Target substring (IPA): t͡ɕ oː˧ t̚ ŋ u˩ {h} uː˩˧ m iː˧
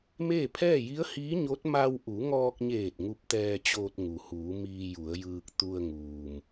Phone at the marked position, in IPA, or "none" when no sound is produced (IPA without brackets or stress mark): h